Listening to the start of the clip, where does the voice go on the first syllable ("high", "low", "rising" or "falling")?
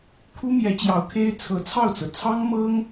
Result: high